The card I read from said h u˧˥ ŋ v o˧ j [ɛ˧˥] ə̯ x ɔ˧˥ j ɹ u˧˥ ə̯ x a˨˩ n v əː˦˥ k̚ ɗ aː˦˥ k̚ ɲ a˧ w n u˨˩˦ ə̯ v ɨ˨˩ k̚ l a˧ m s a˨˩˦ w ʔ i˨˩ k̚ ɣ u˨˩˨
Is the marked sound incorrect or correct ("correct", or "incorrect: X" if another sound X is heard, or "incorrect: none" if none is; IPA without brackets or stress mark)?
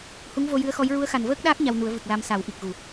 incorrect: ɨ˧˥